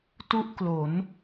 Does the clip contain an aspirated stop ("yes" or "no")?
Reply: no